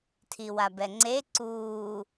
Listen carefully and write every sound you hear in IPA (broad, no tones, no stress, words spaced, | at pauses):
tʰiwabɛŋ͡ǀe ǀuː